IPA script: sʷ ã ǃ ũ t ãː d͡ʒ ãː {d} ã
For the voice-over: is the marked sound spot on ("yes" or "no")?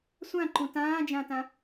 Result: no